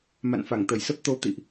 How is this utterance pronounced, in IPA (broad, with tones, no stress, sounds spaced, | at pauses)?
m a̰˧˨ n f a˧˩ ŋ t̪ ə˧˩ j s ə˦˥ p̚ t̪ o˨˦ t̪ ḭ˧˨ ʔ